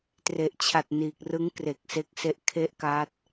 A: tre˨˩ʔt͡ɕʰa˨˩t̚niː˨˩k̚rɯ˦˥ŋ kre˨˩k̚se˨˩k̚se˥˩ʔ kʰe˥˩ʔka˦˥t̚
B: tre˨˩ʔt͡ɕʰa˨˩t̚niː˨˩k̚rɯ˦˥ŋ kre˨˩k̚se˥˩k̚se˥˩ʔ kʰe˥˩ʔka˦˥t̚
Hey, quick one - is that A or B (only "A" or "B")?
B